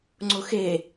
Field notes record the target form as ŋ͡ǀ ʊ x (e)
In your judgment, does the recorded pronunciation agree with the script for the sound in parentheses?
yes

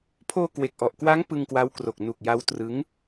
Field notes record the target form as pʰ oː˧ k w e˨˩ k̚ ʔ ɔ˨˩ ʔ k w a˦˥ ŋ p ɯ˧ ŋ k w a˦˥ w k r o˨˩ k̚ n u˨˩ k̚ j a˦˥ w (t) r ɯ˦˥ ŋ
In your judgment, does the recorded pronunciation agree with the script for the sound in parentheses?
yes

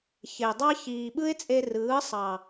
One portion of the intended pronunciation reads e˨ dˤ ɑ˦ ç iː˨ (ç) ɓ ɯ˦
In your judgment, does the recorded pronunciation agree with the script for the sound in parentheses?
no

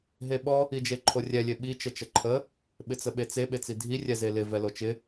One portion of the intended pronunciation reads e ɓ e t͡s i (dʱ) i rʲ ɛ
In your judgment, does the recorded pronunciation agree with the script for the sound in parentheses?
yes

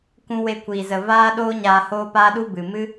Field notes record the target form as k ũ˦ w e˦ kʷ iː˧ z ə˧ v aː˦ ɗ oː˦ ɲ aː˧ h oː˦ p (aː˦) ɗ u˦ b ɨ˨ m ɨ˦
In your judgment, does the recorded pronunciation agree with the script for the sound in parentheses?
yes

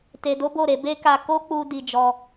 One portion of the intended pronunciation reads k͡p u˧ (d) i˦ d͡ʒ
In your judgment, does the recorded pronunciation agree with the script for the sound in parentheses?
yes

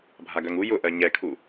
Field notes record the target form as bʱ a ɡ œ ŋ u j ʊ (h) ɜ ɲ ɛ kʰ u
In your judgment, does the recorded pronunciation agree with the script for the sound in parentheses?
no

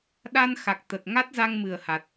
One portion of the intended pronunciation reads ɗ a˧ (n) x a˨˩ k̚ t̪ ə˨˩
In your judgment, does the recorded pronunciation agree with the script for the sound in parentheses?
yes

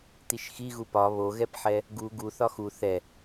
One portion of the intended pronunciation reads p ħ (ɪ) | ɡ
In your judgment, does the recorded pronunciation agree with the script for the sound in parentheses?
no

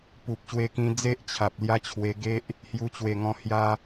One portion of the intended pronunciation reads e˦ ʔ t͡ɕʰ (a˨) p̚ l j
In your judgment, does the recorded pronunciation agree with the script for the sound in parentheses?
yes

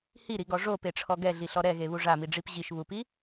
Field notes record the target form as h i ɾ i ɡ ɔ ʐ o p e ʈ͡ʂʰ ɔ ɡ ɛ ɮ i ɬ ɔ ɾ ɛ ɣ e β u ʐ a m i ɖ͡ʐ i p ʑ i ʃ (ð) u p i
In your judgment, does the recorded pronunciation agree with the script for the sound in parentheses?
no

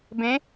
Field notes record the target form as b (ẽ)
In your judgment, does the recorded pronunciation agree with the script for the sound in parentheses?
yes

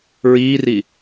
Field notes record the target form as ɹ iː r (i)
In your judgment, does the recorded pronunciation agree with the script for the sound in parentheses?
yes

